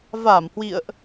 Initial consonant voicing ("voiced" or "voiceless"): voiced